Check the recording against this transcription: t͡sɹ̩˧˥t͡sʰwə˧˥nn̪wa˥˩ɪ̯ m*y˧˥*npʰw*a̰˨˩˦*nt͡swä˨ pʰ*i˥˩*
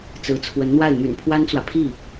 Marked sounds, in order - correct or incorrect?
incorrect, incorrect, correct

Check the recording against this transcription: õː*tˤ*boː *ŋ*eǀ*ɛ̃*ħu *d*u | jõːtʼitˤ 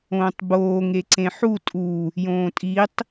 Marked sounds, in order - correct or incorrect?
correct, correct, incorrect, incorrect

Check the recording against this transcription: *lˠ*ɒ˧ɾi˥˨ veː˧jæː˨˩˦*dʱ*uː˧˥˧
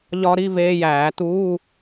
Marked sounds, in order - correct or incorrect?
incorrect, incorrect

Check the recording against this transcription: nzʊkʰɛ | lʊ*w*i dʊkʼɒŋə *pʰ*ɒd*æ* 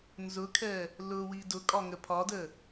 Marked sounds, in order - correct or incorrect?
correct, correct, incorrect

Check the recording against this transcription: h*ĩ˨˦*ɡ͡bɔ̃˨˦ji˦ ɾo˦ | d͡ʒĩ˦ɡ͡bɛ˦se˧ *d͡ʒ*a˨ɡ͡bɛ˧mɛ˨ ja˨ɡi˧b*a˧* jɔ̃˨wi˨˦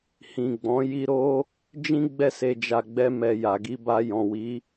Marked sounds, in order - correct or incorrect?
incorrect, correct, correct

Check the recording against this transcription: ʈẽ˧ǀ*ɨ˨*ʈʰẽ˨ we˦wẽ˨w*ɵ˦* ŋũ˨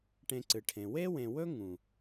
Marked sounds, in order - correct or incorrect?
correct, correct

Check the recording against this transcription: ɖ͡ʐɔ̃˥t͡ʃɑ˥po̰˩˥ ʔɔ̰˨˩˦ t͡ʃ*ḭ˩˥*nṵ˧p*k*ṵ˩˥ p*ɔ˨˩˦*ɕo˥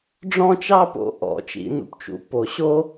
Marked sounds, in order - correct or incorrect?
incorrect, incorrect, incorrect

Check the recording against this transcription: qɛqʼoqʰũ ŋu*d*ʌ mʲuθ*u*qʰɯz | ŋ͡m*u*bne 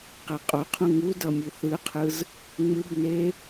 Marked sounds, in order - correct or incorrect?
correct, incorrect, incorrect

